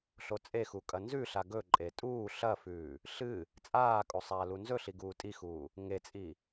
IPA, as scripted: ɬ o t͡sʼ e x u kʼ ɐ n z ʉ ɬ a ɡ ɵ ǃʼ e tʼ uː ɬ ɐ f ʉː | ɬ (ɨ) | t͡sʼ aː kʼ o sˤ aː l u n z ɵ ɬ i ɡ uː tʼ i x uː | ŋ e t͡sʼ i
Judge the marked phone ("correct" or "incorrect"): correct